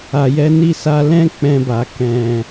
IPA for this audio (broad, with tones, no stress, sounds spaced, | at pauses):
a˨ j ɛ˨˦ n i˦˨ s a˧ l ɛ̃˦ k͡p ɛ̃˧ b a˨ k ɛ̃˨